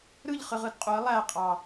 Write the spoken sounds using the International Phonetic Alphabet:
ɾ ɯ ʎ χ ɯ ʁ ɯ d qʼ u ə̯ lˠ æ qʼ ɑ

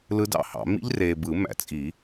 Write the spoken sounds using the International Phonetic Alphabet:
l ɯ˦˥ d ɑ̰˦˥ h ɑ̰˨˩˦ m ḭ˦˥ ʎ r eː˨ b ɯ˨˩˦ m æ̰˨˩˦ t͡sʼ i˨˩˦

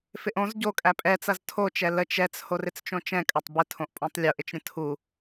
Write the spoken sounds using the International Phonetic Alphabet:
f ɪ ʔ õ z ɟ o kʼ æ pʼ ɛ t͡s ɐ z tʰ o t͡ʃ ɛ l ə t͡ʃ ɛ t͡s h o r ɪ t͡s t͡ʃ õ t͡ʃ ɛ̃ kʼ ɐ tˤ b ɪ tʰ õ ʔ pʼ õ tˤ lʲ o ʔ ɪ t͡ʃ ɾʲ ə̃ tʰ u

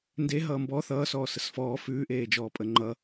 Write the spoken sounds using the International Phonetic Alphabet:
n d e ɦ ʌː m b ɔ θ ʌː s ɔː s ə s f ɔː f ʉː ʔ eː d͡ʒ ɔː pʼ ə ŋ͡ǃ ʌ

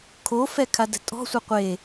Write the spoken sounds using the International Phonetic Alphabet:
kʰ o f ɛ kʰ a d ɛ̤ tʼ ɔ̤ sʷ ɯ qʷ e

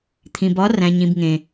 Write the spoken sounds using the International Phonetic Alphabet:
t̪ʰ ĩ˨ b ɒ˨˦ r æ̃˨ ɲ ĩ˨ b ŋ ẽ˨

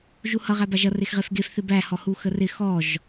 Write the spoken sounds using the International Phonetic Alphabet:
ʒ u h ʌ ʁ æ b a ʒ ʌ r e x ʁ e f ɡ e f θ ɪ b æ h ɔ h u x ə r ɪ x ɔ ʒ

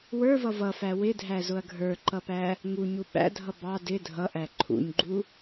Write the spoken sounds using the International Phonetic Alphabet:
w ə˞ v ʌ v ʌ f æ w ɪ dʱ æ z ʊ ɐ̯ ɡʱ ə˞ ǃ ʌ p æ | ŋ u ɲ u ɓ æ̰ dʱ ʌ b ɑ d ɪ dʱ ʌ ʔ æ ǃʰ ṵ ɲ ɡ͡ǃ u

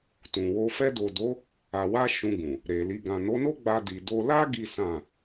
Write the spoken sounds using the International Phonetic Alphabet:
t ũ˨ w o˧ f ɛ˧ d o˨ d o˨˦ | a˨ w a˧ ʃ ũ˧ ɡ ũ˨ | ɾ e˨ l i˨ ɡ ã˨ n o˨˦ n o˦ ɡ͡b a˧ d i˨ d o˧ l a˦ ɡ i˦ s ã˦˨

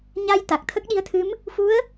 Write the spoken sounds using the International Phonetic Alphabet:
ɲ a˧ j t̪ a˨˩ k̚ t̪ʰ ə˦˥ k̚ ɗ i˧˥ ə̯ t̪ʰ ɨ˧˥ m | f u˧˥ ə̯

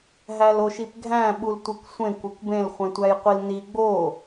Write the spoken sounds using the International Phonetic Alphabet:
ɦ æ l o ʃ i p ɡʱ æ̃ ɓ u l tʷ e kʷ sʷ ẽ kʷ e kʷ b ẽ l χʷ ẽ tʷ æ j qʷ i l n i ɡ͡b o

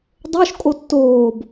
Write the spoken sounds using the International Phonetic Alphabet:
dˤ o ʃ kʼ o tː oː b

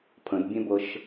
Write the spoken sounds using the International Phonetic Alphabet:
pʰ ə̃ d bʲ ɛ̃ b ɤ ʃ

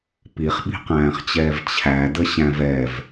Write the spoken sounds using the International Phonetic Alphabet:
p i χ ɓ i̤ q æ̃ː χ t͡ɕ ɛː v t͡ɕʰ æ d ə ɕ æ̃ v ɛ v

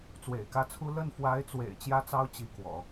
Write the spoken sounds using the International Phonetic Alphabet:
t͡s w ḛ˨˩ ɪ̯ k ä˥˩ t͡sʰ u˥ l ə˥˩ n f w a˧˥ ɪ̯ t͡s w ḛ˨˩ ɪ̯ t͡ɕ j ä˥ t͡s ɑ˥ ʊ̯ t͡ɕ i˧˥ k w ɔ̰˨˩˦

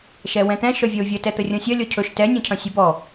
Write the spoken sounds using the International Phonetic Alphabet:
ʃ ɛ w ɛ̃ t̪ ɛ̃ ʃ œ vʲ œ ʊ̯ vʲ ə t ɛ t̪ ə rʲ ɔ̃ sʲ ɐ lʲ ɔ cʰ ɵ ʃ t ɛ nʲ ɔ̃ cʰ ɐ̃ sʲ ɵ b ɔ

